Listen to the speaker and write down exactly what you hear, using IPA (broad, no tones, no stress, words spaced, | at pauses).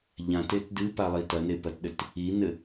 ʎãtet dɨpalˠi tɐnepɐtɗɘt | inɘ